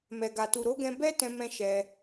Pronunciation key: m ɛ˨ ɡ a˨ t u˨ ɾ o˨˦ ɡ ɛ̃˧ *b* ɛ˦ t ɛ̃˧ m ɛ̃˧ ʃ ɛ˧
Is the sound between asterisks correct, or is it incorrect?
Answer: correct